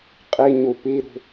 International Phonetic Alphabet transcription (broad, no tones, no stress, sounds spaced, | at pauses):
qʼ i ɲ u p i ɾ ṳ